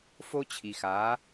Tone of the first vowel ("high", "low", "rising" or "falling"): high